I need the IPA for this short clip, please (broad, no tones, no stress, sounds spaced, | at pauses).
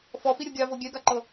f ɔ f i ɾʲ o ɡʲ a v o ɡʲ ɛ ɡ a ǃ ɤ